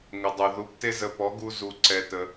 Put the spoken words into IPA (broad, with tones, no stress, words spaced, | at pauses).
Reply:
ŋʊ˨dˤu˨ ðu˨˦pte˦zə˧ pɔ˨˦ɡu˧ zu˧ǀɛ˧ tə˧